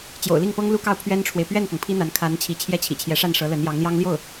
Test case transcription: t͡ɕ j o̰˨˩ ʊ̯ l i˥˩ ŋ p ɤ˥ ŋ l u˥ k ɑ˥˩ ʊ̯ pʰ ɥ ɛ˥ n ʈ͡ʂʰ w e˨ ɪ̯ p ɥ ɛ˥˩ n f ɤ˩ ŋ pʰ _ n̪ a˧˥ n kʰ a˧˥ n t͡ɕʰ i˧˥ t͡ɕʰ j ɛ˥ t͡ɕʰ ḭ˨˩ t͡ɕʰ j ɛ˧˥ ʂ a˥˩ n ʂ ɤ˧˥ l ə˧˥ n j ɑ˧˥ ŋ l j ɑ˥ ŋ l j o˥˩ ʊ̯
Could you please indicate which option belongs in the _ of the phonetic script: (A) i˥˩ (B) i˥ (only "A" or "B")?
B